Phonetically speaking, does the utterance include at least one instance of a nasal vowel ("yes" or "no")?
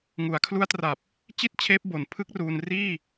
no